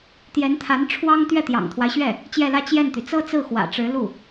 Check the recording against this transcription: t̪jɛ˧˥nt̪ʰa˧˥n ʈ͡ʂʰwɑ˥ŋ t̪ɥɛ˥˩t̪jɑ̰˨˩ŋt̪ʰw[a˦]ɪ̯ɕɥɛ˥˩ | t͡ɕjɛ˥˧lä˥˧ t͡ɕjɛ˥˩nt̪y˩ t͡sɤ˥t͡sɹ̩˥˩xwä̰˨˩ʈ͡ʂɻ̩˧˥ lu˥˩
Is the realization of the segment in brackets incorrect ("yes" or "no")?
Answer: no